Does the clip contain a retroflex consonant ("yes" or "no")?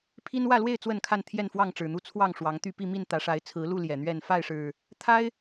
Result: yes